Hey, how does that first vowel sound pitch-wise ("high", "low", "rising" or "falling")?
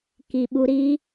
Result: low